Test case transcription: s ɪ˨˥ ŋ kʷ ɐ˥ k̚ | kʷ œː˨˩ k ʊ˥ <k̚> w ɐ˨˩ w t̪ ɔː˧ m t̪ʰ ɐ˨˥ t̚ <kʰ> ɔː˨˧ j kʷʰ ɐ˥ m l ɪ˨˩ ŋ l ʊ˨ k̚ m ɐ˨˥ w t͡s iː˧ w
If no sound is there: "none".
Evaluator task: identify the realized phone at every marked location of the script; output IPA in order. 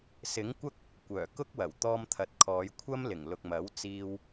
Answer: k̚, kʰ

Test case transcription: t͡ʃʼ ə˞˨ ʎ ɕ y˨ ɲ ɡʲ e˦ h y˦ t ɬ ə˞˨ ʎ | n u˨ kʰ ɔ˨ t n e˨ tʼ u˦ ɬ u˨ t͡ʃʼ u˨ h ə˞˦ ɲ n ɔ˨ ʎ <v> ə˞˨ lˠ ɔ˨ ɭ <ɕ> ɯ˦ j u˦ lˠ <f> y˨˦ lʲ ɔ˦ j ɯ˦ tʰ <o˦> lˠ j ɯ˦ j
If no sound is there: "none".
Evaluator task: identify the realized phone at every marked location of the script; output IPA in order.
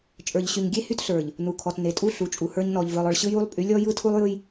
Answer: v, ɕ, pʼ, u˦

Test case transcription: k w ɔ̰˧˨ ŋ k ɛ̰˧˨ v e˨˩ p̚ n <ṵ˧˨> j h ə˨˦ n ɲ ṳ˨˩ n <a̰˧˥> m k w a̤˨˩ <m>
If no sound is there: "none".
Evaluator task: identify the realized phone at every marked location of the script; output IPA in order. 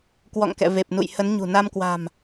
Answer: ṵ˧˨, a˧, m

